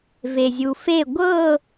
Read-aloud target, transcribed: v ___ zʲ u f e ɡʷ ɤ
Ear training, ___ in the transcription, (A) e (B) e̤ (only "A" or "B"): A